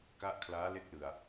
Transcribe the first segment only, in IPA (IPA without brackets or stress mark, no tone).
k